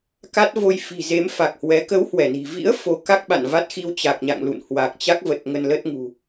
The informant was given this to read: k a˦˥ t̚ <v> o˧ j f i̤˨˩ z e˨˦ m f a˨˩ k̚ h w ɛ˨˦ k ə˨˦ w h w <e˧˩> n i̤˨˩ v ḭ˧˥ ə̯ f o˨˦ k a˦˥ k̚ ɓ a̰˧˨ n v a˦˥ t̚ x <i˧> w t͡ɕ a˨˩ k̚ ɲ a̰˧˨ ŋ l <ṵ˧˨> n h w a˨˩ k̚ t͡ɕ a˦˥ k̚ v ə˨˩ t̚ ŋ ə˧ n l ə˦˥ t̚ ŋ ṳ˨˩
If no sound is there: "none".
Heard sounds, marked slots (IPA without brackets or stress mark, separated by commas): v, ɛ˧˩, i˧, ṵ˧˨